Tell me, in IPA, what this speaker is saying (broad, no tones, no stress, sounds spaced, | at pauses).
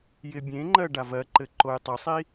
j ɪ bʲ ẽ ŋ͡ǃ ɜ ɖ a v ɜ ǃ ɘ ǃ o j tˤ ɘ sˤ i